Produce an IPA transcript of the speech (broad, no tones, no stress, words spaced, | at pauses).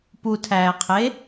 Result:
putʰæːqʰe